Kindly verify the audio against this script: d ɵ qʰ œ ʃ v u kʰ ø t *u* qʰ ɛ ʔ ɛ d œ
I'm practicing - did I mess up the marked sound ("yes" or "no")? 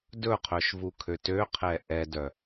yes